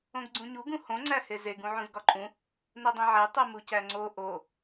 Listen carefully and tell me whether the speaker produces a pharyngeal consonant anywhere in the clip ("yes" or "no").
yes